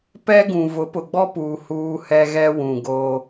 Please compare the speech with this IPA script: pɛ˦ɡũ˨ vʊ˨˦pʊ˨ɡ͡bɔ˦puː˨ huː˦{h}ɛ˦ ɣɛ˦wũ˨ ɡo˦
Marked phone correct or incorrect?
correct